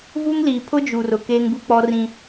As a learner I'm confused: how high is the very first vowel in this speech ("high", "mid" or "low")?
high